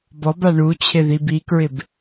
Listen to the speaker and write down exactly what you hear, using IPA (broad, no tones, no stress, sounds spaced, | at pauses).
b ɔ b a ɳ u t͡ɕʰ ɪ ð i b i k ɹ ɪ b